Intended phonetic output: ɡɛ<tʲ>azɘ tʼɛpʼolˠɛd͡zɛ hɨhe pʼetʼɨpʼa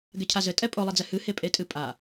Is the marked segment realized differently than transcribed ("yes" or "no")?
yes